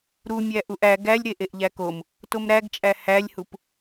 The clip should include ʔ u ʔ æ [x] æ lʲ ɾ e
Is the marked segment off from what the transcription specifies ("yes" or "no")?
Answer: yes